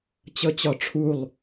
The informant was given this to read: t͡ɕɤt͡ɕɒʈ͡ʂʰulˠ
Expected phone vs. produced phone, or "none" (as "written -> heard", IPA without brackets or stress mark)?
none